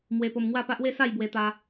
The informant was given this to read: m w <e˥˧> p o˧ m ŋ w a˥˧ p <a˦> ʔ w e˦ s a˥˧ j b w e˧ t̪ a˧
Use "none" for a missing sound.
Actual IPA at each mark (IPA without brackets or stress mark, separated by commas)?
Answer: e˧, a˦